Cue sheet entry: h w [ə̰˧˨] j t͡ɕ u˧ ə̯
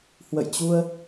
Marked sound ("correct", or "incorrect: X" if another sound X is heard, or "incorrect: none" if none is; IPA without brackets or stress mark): correct